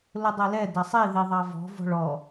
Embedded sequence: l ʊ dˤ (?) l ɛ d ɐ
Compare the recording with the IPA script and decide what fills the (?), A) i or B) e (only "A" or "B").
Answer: B